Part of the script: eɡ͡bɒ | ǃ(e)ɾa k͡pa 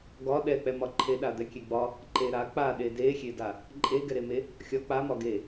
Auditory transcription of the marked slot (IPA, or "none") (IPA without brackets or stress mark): e